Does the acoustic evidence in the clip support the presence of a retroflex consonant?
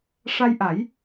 yes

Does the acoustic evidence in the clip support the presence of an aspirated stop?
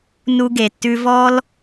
no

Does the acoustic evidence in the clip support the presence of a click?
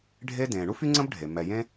yes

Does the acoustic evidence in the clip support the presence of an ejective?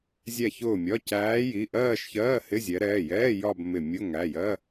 no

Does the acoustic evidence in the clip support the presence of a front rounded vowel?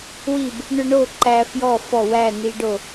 yes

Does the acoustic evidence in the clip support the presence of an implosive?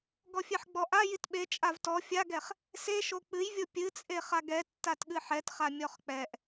yes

